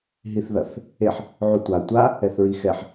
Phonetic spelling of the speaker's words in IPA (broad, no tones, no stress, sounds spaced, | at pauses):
ɦ i θ ð ɐ θ | e ħ | ʕ u tʷ a tʷ a | ɛ θ ɹ i x ɛ ħ